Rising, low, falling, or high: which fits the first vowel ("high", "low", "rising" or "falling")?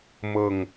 falling